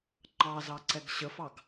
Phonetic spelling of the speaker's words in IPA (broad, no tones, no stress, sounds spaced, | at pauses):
ŋ͡ǃ ɑ z ɑ ǀ ɛ ɡ ɕ ə f ɑ ɡ